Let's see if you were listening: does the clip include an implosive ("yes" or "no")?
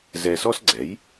no